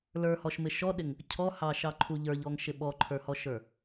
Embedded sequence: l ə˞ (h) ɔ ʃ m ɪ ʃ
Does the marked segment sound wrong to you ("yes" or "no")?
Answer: no